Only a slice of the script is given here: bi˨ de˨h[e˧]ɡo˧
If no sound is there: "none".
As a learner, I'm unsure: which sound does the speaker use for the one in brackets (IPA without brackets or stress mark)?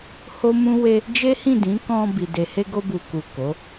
e˧